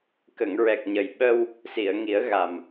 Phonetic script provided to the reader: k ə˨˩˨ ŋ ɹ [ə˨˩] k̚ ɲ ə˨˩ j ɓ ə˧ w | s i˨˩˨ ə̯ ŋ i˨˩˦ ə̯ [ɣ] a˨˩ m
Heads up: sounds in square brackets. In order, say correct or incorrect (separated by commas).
incorrect, correct